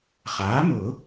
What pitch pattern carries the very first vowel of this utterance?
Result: rising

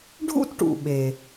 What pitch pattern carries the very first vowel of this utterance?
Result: high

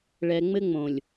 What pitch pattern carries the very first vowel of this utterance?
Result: low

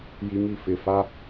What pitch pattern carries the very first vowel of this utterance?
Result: high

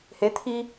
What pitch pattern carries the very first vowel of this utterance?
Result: rising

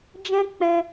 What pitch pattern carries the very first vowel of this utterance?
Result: high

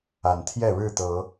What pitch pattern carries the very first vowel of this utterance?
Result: low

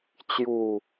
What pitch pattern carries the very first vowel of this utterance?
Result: low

